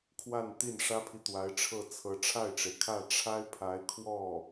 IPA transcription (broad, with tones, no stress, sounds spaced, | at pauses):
kʰ w a˥˧ n t̪ i˥˩ n ʂ ä˥ pʰ i˨ t̪ w a˧˥ ɪ̯ ʈ͡ʂʰ ɤ˥˩ t͡sʰ ɤ˧˥ ʈ͡ʂʰ a˥˩ ɪ̯ ʈ͡ʂ e˩ ɪ̯ kʰ ä˥˩ ʈ͡ʂʰ a˥ ɪ̯ pʰ a˧˥ ɪ̯ kʰ w ɔ˥˩